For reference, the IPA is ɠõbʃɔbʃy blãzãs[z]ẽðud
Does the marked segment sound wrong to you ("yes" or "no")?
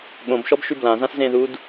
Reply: no